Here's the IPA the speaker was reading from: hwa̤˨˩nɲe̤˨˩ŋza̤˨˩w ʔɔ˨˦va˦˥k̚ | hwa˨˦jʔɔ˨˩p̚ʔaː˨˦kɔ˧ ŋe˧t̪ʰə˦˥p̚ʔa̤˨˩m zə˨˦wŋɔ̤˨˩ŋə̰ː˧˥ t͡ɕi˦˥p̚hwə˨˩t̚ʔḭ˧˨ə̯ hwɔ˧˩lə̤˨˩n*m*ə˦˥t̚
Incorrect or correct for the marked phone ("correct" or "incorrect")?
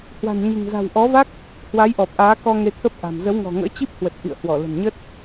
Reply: incorrect